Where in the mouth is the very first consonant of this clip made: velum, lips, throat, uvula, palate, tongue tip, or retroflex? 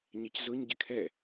palate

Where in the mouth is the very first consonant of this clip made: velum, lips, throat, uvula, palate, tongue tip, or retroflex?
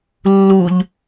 tongue tip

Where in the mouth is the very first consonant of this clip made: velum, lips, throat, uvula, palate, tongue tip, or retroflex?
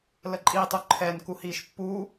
tongue tip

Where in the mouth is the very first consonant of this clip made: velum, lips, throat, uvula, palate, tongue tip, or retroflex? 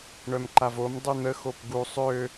retroflex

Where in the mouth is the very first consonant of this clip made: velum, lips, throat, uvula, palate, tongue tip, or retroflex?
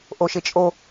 throat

